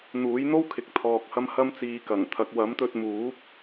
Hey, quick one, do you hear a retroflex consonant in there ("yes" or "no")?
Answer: no